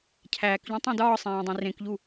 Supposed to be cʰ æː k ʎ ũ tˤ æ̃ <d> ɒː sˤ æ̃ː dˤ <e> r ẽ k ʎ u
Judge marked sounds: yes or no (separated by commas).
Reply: yes, no